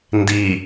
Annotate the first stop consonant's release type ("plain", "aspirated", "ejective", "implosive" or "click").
plain